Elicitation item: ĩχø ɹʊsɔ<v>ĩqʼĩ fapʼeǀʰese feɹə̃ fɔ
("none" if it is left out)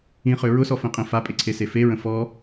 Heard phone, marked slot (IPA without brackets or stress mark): f